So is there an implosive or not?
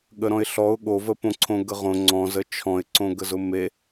yes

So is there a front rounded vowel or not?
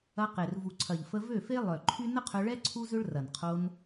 yes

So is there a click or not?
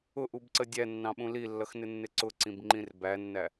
yes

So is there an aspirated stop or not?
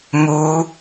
no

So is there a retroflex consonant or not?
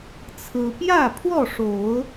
yes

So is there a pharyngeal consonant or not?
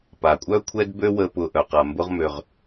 no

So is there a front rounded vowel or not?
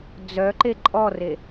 yes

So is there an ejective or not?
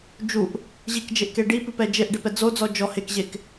no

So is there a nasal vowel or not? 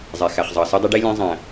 yes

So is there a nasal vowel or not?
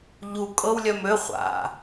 no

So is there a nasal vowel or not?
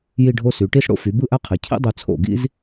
no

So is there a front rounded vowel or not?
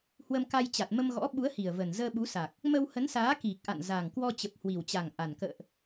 no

